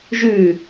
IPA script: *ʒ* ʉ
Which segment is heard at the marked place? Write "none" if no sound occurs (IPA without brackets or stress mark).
ʒ